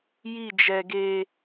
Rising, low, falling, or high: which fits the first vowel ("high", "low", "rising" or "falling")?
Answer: falling